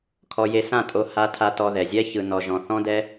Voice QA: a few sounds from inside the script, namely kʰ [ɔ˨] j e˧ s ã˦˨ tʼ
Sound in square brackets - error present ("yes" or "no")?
yes